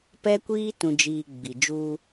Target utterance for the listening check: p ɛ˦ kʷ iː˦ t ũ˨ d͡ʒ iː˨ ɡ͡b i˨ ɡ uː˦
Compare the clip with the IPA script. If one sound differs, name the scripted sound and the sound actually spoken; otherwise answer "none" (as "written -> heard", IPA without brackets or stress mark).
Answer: ɡ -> d͡ʒ